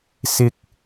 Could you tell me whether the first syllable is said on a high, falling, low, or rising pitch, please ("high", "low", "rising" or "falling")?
high